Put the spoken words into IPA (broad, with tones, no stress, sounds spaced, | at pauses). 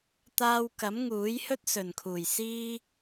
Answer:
t̪ aː˧ w k ɐ˨˥ m ŋ uː˨˥ j h ɵ˥ t̚ s ɵ˨˩ n kʰ uː˨˩ j s iː˥